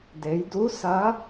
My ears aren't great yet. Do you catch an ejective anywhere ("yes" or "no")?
no